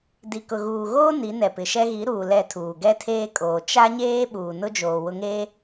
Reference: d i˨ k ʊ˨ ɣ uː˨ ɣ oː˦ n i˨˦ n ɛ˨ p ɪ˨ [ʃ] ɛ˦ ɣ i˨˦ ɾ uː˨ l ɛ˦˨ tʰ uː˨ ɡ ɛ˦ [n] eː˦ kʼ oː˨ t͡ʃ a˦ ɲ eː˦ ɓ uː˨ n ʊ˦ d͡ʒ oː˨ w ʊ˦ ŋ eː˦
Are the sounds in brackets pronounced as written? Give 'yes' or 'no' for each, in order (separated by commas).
yes, no